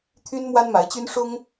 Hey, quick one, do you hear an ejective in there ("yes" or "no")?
no